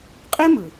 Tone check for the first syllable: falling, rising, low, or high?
high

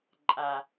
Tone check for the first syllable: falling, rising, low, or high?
low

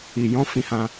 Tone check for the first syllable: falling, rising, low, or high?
low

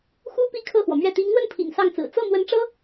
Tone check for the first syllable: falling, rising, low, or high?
high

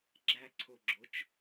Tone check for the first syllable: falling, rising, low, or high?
high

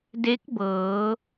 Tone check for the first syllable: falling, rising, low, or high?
rising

